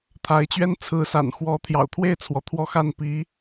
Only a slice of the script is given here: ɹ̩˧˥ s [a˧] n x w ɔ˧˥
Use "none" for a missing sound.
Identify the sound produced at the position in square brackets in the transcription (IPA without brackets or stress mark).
a̰˨˩